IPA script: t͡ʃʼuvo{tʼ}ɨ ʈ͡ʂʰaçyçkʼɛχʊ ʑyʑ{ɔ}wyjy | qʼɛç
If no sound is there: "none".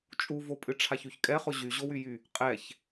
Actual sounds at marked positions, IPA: pʼ, o

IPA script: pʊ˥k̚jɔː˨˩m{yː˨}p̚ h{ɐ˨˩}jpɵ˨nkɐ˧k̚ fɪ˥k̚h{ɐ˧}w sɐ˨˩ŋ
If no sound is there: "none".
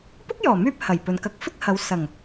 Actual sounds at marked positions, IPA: yː˧, ɐ˨˩, ɐ˨˧

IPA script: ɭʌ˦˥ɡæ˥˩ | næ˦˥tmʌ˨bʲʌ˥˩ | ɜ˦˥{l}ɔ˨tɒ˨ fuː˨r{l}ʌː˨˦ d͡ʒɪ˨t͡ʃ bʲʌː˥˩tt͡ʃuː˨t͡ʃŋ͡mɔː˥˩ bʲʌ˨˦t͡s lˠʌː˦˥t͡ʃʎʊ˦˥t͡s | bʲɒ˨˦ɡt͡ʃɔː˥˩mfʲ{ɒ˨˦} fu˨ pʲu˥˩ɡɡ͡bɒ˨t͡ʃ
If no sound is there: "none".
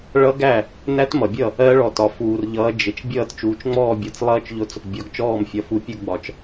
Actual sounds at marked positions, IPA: ɭ, ʎ, ɒ˨˦

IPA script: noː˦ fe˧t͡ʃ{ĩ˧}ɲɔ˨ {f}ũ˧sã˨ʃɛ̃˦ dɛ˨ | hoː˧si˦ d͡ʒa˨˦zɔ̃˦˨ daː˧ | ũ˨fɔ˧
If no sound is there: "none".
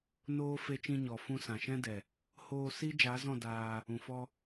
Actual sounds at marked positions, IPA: ĩ˧, f

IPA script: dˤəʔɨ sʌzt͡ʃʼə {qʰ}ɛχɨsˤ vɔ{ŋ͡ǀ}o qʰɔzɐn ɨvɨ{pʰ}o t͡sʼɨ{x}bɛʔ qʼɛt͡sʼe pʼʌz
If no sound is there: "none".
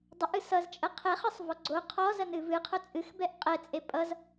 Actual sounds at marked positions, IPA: qʰ, ɡ͡ǀ, qʰ, x

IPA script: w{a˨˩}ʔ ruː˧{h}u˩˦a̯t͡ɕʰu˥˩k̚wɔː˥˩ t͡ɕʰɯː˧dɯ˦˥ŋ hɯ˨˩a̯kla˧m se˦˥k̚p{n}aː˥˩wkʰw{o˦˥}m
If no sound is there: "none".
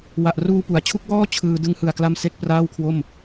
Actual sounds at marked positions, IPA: a˨˩, p, r, o˥˩

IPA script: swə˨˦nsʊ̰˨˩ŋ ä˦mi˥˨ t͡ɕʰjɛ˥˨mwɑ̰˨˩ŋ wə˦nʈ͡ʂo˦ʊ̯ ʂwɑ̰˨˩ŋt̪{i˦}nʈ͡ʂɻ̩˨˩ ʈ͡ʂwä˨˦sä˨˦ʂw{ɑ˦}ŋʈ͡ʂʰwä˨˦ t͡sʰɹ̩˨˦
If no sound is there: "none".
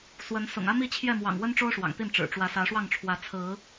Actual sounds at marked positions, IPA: i˥˨, ɑ˥˨

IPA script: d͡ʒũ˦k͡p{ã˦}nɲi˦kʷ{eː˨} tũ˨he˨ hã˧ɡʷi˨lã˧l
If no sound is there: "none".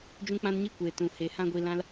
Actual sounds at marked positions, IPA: ã˦, eː˨

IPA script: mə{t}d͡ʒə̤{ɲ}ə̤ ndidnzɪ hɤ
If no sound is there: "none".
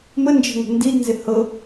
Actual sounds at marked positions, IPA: n, ŋ

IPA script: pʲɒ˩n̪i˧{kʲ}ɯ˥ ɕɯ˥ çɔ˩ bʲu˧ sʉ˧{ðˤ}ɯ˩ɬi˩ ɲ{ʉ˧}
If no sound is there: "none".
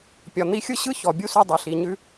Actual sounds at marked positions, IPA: xʲ, dˤ, ʉ˧

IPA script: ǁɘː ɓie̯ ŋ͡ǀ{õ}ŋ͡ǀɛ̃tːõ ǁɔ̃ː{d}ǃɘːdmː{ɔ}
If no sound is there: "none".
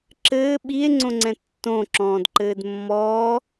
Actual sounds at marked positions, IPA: õ, d, ɔː

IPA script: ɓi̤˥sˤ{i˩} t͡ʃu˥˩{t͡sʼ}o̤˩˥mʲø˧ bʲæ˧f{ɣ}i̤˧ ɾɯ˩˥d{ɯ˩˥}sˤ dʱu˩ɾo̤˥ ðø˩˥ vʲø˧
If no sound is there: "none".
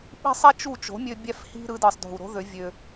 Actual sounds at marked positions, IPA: i˥, t͡ʃ, h, ɯ˩

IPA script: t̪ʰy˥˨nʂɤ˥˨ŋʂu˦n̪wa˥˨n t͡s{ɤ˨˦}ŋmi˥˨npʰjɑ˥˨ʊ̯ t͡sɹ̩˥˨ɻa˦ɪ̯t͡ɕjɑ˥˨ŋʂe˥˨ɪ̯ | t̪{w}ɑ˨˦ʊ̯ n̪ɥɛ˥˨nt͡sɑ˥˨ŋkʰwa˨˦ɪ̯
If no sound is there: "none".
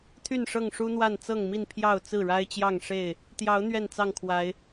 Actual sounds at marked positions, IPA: ɤ˥˨, j

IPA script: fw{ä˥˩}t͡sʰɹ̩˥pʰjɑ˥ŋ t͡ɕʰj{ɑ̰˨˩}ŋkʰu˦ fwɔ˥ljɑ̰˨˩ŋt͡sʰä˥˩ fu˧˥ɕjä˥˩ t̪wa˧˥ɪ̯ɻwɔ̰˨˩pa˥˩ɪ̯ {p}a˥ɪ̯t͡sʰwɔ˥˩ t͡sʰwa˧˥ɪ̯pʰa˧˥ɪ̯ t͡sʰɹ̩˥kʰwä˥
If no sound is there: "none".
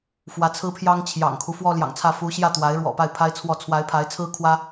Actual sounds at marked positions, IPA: ä˧˥, ɑ̰˨˩, pʰ

